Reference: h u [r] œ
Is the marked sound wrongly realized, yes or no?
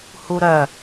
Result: yes